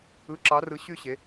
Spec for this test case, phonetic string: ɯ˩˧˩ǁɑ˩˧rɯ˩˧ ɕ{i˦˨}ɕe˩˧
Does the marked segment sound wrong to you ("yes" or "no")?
yes